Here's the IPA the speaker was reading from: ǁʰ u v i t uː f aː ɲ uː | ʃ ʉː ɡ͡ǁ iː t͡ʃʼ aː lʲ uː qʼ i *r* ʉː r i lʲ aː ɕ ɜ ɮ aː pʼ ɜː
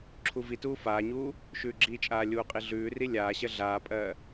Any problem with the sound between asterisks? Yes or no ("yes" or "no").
yes